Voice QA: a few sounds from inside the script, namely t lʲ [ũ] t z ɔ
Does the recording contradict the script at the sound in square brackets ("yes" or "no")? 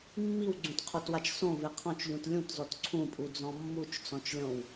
no